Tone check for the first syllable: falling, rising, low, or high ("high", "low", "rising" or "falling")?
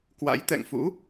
rising